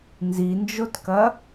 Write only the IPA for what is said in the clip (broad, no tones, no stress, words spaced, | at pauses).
nzind͡ʒotkɐ